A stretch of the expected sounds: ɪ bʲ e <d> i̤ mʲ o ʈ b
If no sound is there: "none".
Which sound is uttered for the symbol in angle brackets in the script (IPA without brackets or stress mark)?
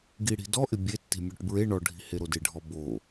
tː